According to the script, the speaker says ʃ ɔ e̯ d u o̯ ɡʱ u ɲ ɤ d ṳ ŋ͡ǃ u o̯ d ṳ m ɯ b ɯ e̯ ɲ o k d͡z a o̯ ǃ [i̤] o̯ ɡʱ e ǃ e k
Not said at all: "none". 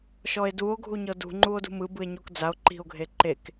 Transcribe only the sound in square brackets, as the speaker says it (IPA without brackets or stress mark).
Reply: i̤